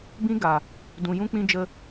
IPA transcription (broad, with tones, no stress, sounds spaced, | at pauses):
b ĩ˧ ɡ a˨ | d ũ˨ j ũ˧ k͡p ĩ˧ d͡ʒ ə˧